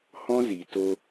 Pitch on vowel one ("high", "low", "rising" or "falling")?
high